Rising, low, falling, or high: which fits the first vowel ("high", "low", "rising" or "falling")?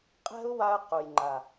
high